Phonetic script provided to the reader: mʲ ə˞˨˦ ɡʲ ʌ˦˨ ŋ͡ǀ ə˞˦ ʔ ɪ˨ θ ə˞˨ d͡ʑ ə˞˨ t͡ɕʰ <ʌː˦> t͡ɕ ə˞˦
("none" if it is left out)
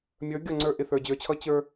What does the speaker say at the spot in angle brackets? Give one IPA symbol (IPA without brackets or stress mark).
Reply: ʌ˦